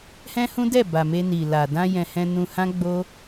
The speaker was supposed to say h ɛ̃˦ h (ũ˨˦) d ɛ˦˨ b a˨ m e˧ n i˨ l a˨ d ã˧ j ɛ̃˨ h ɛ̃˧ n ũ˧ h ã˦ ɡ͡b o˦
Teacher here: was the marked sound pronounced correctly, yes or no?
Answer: no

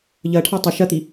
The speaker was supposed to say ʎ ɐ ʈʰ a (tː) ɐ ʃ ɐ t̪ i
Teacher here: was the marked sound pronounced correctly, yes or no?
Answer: no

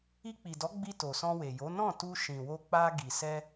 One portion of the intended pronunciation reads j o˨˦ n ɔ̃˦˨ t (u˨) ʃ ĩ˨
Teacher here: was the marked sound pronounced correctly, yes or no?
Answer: no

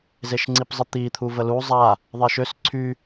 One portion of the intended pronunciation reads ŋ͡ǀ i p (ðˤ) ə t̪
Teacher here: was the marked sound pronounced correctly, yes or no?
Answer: no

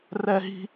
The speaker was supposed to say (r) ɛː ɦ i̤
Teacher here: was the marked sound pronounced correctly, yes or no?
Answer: yes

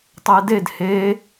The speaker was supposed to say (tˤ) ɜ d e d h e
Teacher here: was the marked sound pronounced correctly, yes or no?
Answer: yes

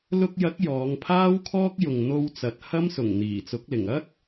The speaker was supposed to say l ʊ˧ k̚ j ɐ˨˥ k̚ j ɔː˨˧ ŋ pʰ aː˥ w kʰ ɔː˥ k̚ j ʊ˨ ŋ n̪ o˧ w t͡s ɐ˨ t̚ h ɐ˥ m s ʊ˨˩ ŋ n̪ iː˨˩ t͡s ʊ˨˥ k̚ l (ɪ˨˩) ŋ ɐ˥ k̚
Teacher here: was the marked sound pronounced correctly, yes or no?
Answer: yes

